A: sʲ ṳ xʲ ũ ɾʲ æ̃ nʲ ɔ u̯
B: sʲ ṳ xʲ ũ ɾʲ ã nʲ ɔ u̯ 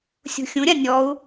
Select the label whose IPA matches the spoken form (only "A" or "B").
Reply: B